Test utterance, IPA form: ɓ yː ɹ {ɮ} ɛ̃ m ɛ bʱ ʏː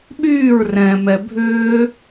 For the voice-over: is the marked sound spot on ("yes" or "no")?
no